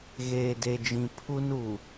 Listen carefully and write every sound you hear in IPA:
ɣ eː˨ d e˨ d͡ʒ ĩ˨ pʰ u˦ n u˨

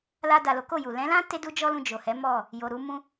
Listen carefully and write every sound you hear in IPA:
l a˧ d a˨ l o˨˦ k o˦˨ j u˨ l ɛ̃˨˦ l ã˦ t e˦ d u˦ d͡ʒ ɔ˦ l ũ˧ d͡ʒ o˨ h ɛ˨˦ m ɔ˦˨ | j o˨ ɾ u˧ m ũ˧

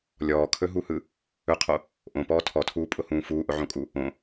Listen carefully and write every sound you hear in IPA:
lʲ ɔː kʰ ɵ ɦ u h ɯ | ɵ qʰ o | ʔ õ p ɔː tʰ ɔ tʰ uː pʼ ʊ h ũː f uː ʔ ʊ ʕ õ kʼ u | õ

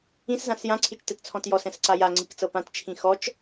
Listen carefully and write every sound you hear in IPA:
ĩ s z ã s j ã ǀʰ i t͡ʃ t ɛ t t͡sʰ ɔ̃ t j ɔ s ɛ̃ s ǀ a j a ŋ͡ǀ i k t͡s ɤ p ã t t͡ʃʰ ĩ x ɔ t͡ʃ

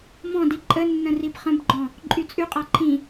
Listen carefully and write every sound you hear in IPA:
m ɔ̃ d i ǃʼ ə nː ə̃ r i b χ ə̃ b ɡ͡ǃ ɔ̃ | ǃʼ y t͡sʼ y qʼ a ǃʰ ĩ

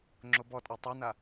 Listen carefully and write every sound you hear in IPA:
ŋ͡ǁ o b ɔ tʼ a tˤ œ n a

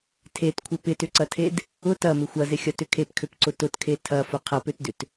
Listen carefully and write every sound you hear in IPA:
tʰ e t kʷʰ ɪ p ɪ t ʏ ǀ ɐ tʰ e d | ʊ t ɐ m ɪ xʷ ɐ z ɪ xʲ ɐ t ʏ kʰ e p kʰ ø p ǀ ʊ t ʊ t kʰ e tʰ ɐ f ʊ qʰ ɐ p ø t d ʏ t

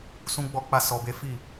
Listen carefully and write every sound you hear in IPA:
s ũ˦ ɡ͡b ɔ˦ k͡p a˦ s ɔ˧ b e˦ f i˦˨

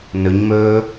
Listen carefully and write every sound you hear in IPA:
n ɵ ɲ m ɵː

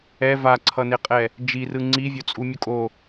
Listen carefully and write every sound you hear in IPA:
ɛ v a ǀʰ ʌ n e qʼ ɛ | d͡ʒ i r ɯ ŋ͡ǀ i vʲ o t͡sʼ u mʲ o kʼ o

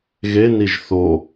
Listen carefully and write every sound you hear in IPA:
ɣ e n i ʒ θ o

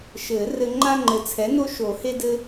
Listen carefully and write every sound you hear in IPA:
ʃ ɘ˨˩˦ r ɘ˦ ŋ͡ǃ a˦ ŋ͡ǃ ɘ˨˩ t͡sʰ ɛ˩˥ n o˦ ʃ o˨˩˦ h e˦ d ɘ˦

